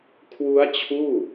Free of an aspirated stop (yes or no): no